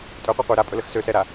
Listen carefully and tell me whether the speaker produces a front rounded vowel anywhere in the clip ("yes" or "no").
yes